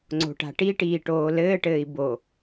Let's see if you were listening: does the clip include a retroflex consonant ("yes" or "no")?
yes